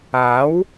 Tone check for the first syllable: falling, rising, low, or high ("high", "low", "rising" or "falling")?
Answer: rising